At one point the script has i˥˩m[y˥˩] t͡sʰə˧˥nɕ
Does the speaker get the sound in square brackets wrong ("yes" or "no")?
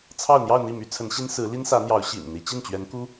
yes